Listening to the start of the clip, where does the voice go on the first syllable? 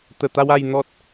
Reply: low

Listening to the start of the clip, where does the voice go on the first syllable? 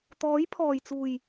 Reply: rising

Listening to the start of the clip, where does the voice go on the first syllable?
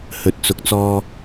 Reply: low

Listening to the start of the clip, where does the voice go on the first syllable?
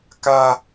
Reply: high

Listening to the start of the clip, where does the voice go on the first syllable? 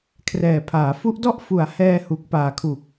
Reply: low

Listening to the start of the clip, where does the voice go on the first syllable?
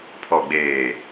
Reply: low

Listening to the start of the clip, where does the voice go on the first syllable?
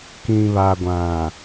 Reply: low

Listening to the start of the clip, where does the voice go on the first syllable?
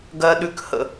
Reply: high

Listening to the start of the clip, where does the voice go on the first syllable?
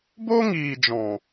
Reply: high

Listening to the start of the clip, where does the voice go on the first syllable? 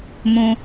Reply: low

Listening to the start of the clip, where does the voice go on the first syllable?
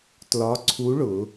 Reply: rising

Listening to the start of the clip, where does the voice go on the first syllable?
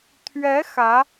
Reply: rising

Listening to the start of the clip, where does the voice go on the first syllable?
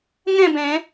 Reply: falling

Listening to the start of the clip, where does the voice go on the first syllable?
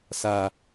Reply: low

